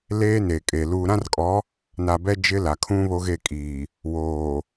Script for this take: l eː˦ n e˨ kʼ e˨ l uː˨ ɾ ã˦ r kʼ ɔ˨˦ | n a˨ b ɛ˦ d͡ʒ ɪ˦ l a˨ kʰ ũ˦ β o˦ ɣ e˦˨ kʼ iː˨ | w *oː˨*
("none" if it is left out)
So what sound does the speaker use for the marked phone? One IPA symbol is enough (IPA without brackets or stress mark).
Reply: oː˨